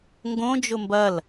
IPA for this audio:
ŋ ɡ õ d͡ʒ ʊ m b ɐ l

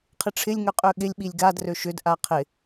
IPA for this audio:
qʰ ɪ ʈ͡ʂʰ ɪ lʲ ŋ ø qʼ ø ɠ ɪ lʲ ɓ i lʲ ɡ a d r ø ʃ ʏ d ʔ a qʰ ɪ

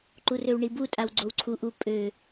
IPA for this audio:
ǃ u r ø w ɳ i b u tʼ a w ɡ͡ǀ o w ǀʰ u ʔ u pʼ ø

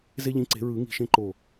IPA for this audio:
z e˦ ʎ ĩ˨˥ ǀ e̤˨˩˦ ɹ ɯ˨˩˦ ŋ i̤˧˩ ʃ ẽ˦ ǃ o˧˩

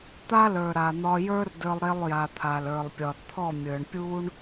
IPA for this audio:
t̪ a˦ l ə˞˨ ɾ a˨ n̪ ɒ˧ j ə˞˦ r d ə˞˧ lˠ ɾ e˧ lˠ j a˨ t̪ʰ a˨ l ə˞˨ lˠ pʲ ɒ˨ d t̪ʰ ɔ˦˨ mʲ ə˞˨ ɳ pʲ u˦ ɳ

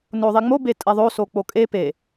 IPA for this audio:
n o ðˤ i ŋ͡m o b e tʼ ɛ ðˤ o s o k͡p o kʼ e p e

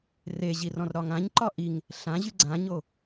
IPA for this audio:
r e ʑ i r ɔ̃ r ɾ ɒ ŋ ã ɲ ǃ ɒ ʔ i ŋ | ɬ ã ʑ y ɡ͡ǀ ã ɲ o

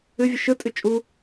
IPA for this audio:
ɨ vʲ ɯ ʃ ɯ tʼ ɨ t͡ʃʼ u

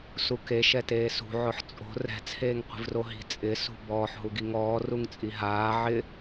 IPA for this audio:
s u k e ʃ ɛ t eː s ṳ ʕ ʊ ħ t͡sʼ o̤ r ɛ̤ t͡sʰ eː ŋ qʷ i̤ v r o ɦ i̤ t͡sʼ ɪ s ṳ b ɔː ħ ɦ u ɡ i ŋ ɔː r u ŋ t͡sʼ i ɦ aː ʕ ɪ

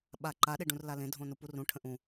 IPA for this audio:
ɓ a ǃ a ɗ e ɖ ũ r l a l ẽ dʱ õ n u p u r ũ ʈʰ ə̃ ʔ ũ

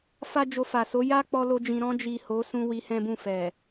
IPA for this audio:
f a˦ d͡ʒ o˧ f a˨ s o˨˦ j a˦ k͡p ɔ˦ l o˦ d͡ʒ ĩ˧ ɾ ɔ̃˧ d͡ʒ i˨ h o˨˦ s ũ˦ w i˧ h ɛ̃˦ b ũ˦˨ f ɛ˨

